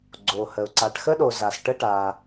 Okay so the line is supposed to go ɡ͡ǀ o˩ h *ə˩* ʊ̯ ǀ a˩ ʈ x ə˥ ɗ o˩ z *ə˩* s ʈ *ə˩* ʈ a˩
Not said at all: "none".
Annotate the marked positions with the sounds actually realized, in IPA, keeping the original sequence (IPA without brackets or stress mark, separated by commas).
ə˩, a˩, ə˥